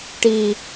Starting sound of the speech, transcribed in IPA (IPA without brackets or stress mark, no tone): ʈ